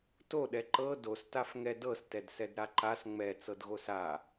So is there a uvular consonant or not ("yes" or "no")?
no